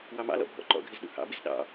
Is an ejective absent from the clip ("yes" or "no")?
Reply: yes